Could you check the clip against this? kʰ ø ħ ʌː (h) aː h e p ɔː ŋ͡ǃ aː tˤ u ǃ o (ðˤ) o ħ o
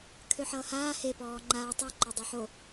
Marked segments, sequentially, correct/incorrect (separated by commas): correct, incorrect